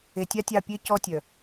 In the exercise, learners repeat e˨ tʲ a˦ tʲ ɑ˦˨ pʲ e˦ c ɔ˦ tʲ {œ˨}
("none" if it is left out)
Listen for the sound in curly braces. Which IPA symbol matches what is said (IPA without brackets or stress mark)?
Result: œ˨